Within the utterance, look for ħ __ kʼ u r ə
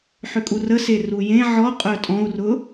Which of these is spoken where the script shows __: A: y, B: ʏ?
B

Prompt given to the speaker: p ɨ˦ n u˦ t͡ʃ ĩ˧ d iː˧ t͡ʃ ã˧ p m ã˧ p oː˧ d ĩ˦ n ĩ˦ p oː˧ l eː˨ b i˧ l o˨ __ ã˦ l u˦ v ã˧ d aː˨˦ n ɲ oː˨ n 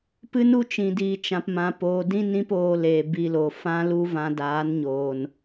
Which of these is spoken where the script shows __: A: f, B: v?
A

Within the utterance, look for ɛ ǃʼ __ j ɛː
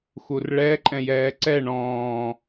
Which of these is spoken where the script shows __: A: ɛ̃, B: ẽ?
A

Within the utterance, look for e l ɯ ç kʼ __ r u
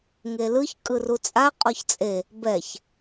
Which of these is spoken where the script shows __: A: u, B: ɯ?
B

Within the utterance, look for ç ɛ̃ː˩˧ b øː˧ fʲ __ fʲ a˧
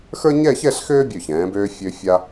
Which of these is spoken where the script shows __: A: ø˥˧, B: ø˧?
B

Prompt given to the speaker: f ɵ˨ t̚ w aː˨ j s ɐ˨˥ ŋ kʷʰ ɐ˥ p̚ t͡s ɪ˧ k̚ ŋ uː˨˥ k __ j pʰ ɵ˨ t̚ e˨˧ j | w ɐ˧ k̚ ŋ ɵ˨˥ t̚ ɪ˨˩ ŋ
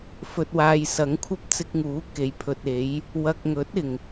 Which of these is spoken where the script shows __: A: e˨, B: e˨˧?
A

